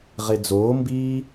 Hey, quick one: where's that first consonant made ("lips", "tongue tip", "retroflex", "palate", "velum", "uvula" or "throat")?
uvula